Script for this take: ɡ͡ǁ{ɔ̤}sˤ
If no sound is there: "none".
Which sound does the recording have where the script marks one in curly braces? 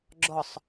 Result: ɔ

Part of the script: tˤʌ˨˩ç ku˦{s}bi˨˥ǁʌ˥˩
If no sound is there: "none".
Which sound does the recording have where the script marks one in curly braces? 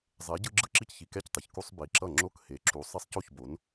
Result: sˤ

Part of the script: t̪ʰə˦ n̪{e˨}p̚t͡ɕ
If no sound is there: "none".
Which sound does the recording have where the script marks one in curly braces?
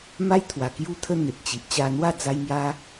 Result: e˨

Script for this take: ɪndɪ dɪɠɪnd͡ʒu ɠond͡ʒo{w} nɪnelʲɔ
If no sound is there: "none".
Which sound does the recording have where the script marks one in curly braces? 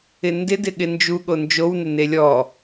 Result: w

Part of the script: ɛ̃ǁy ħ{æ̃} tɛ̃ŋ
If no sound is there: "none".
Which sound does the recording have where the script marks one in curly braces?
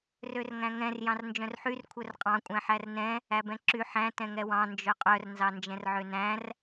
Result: æ̃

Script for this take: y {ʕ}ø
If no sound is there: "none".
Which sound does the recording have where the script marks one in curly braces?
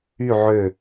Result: ʕ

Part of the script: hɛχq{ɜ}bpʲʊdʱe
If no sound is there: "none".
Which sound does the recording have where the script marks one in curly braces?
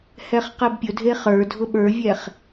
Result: ɜ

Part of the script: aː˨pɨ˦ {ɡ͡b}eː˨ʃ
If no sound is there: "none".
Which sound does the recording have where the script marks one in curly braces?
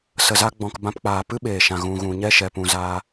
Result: ɓ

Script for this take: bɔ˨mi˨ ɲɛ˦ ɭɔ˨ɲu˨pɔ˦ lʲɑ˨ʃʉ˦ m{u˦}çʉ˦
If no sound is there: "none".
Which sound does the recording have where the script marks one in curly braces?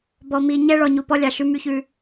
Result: y˦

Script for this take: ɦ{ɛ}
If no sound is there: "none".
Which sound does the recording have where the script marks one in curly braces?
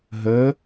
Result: ə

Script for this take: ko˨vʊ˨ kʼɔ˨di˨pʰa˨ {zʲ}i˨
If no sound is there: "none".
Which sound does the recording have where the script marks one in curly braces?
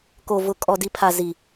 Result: z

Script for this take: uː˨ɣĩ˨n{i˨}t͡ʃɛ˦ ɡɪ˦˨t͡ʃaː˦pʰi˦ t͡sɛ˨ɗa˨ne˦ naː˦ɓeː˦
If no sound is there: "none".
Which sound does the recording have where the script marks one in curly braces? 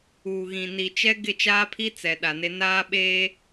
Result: i˨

